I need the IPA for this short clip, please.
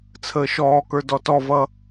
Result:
t͡sʰ əː ʃ ɔː k ə˞ d ɔ t ɔ v ʌ

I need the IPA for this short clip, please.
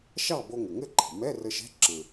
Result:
ʃ ɑ˥˨ b o˧ ŋ ə˩ ŋ ɘ˥˨ ǃʰ ə̤˩ m ɛ˧˥˧ r ə˧ ʃ ɛ̤˧˥˧ ǁ ə̃˩

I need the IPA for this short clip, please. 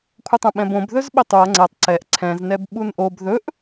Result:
kʷʰ ə tˤ õ ɓ ɛ̃ b õ b ð ɵ z ɓ ɪ tˤ u ɐ̯ ŋ͡ǀ ɛ tˤ ǀ ɛ ʔ ǀʰ ɛ̃ z n ɛ b ɓ u n ʔ o b ð ɵ ʔ

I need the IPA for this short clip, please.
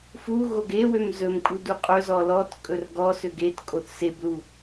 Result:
f u ɣ o ɡ e w ø m z ɵ m kʼ u d u qʼ ɵ z ɔ l ɔ t kʼ ɵ r ɡ ɔ s ø ɡ e t kʼ o θ s e b l u

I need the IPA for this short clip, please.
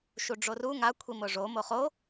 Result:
ʃ u ɖ͡ʐ o r u ŋ a kʷʰ i m ʊ ʐ o m o χ o

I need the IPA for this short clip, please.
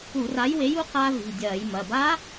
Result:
u˧˩˧ r a˨˥ j w e˨˥ j u˨˥ q a˦˥ v i̤˩˧˩ dʲ ɐː˧˩˧ j m ɐ˩˧˩ b a˦˥

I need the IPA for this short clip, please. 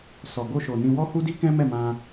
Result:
s ɔ˨ ɡ o˧ ʃ o˨ n ĩ˧ w ɔ˦ h u˦ d i˦ k ɛ̃˦ m ɛ˦˨ m ã˧

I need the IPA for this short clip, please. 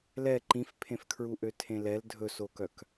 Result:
l ɛ ǃ ĩ f pʰ ẽ f kʰ ɹ u ʔ ø tʰ ẽ l ɛ l dʱ ɵ s o k œ k

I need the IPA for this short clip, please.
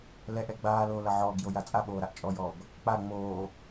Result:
l ɛ ʔ ɛ ɡ͡b aː l oː l ɐ ʕ ɔː ɡ j o j a t͡sʼ a ɓ oː ɾ a ʔ t͡ʃʼ ɔ j ɔː ɡ | k͡p a ŋ͡m oː

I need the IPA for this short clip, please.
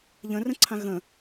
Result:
ʎ ə̃ r ə̃ ǀʰ ã ɣ ə̃

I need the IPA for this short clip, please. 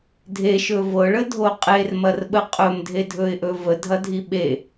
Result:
dʱ e ʃ ɵ v ɤ ɭ ə dʱ o qʼ e r m ɐ r ɓ ə qʼ ɵ m dʱ e dʱ ɵ ɪ̯ ʔ ɵ v ə dʱ ɐ dʱ i ɓ e

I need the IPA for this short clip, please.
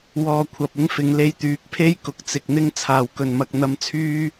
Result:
w ɔː˧ kʷʰ ɐ˨ p̚ ɪ˥ ŋ f ɪ˨˧ ŋ l e˧ j t̪ yː˨˥ k̚ pʰ e˥ j k ʊ˨˥ k̚ t͡s ɪ˨ k̚ n̪ ɪ˥ ŋ t͡sʰ aː˨˩ w k ɵ˨˩ n m ɐ˨ k̚ n̪ ɐ˧ m t͡sʰ yː˥

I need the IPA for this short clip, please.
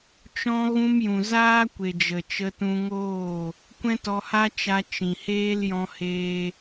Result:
t͡ʃ ɔ̃˧ ɣ ũ˧ m j ũ˨ z aː˦ kʷ e˨ d͡ʒ ə˨ t͡ʃ ə˧ t ũ˧ ŋ oː˦˨ | kʷ ɛ̃˦ t ɔ˧ h a˦ t͡ʃ a˧ t͡ʃ ĩ˨ h eː˦ l j ɔ̃˦ h eː˦

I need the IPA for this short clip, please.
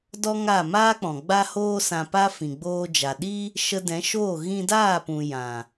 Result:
d ɔ˦ ŋ a˦˨ m aː˦ k͡p ɔ̃˨ ɡ͡b a˦ h oː˦ s ã˧ p a˦ f ĩ˨ ɡ͡b oː˧ d͡ʒ a˨ ɗ i˦ | ʃ ə˧ d ɛ̃˨˦ ʃ oː˦˨ ɣ ĩ˧ d aː˦˨ p ũ˨ j ã˨

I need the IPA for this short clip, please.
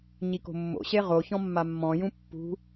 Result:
ɲ i k o̤ mː o̰ ɕ e ʁ o ç ɔ̃ mː a mː ɔ̃ j ũ pː ṳ

